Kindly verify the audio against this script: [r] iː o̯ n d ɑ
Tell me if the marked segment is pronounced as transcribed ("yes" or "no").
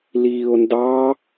no